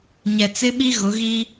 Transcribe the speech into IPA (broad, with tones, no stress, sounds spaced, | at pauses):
ɲ ɛ˨ t͡s ɪ˦ ɓ i˦ ɣ ʊ˨˦ ɣ i˦